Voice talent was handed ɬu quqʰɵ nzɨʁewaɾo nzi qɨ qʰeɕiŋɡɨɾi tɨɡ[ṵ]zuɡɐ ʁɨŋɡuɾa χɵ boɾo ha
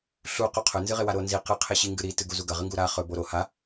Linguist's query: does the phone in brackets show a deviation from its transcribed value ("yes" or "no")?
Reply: yes